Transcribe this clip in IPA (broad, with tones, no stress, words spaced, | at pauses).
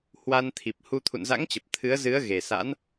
hwa˧nt̪ʰi˨˩p̚hu˧ t̪ʰṵ˧˨nza̰˧˥ŋt͡ɕə˨˩p̚ t̪ʰɨ˨˦ə̯ zɨ˨˦ə̯ɣe˨˩ sa̰˧˥n